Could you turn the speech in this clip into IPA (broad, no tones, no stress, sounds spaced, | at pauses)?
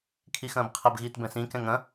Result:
kʰ i x ɐ̃ː b qʰ ɐ b ɣ iː t b ɛ̃ s ĩ k ɛ̃ ŋ ɐ̃